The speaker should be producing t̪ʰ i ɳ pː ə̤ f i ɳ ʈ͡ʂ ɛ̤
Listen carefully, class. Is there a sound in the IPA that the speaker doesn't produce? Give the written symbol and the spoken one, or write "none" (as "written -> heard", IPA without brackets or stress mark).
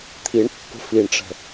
ɛ̤ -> ə̤